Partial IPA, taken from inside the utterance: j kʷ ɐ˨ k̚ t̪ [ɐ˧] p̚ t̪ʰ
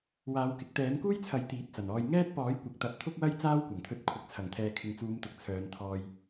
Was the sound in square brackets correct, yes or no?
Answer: no